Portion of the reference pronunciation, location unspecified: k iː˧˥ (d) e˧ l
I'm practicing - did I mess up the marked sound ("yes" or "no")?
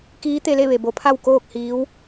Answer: yes